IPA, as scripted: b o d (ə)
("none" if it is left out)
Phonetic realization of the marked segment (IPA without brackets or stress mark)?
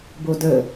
ə